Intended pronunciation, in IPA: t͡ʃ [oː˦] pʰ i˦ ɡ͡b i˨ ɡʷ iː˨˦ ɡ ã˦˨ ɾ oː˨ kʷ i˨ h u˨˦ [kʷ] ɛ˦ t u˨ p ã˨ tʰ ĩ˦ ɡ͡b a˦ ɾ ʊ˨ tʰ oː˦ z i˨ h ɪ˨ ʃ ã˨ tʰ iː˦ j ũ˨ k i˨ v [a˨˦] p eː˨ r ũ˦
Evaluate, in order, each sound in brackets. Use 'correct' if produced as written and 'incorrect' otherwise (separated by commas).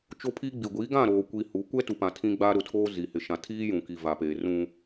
incorrect, correct, incorrect